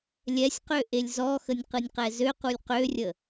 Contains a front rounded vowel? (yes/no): yes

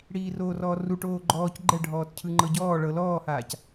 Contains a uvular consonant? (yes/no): no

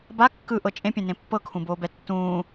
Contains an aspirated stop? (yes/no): yes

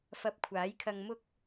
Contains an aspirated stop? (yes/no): yes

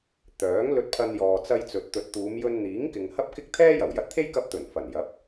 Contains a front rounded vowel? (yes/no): yes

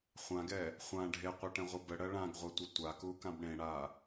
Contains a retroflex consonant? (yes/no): yes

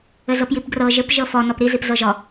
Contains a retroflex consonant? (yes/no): no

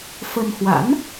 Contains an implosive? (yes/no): no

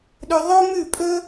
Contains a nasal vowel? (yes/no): no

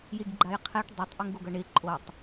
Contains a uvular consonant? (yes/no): yes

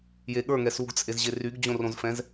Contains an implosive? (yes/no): yes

